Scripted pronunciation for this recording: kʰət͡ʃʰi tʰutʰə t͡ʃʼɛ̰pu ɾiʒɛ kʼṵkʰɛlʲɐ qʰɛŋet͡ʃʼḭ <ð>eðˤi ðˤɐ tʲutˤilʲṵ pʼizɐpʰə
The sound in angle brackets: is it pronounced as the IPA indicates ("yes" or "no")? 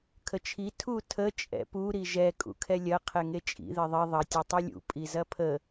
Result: yes